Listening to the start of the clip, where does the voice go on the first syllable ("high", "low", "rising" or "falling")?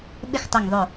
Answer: falling